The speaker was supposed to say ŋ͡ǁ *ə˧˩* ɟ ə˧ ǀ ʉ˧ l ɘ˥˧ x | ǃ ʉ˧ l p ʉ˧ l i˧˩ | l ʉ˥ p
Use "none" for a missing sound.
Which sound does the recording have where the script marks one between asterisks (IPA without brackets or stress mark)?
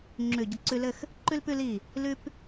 ʉ˧˩